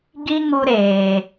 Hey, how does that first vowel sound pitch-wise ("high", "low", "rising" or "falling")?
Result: high